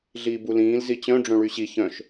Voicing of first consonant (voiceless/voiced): voiced